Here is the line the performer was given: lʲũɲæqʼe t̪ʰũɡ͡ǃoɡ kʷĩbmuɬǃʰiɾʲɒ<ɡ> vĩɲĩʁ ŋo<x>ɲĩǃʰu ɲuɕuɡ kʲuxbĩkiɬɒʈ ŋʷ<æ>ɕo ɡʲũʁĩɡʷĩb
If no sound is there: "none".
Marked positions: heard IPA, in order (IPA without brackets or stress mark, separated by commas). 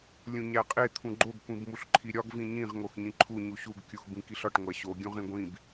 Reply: ɡ, x, æ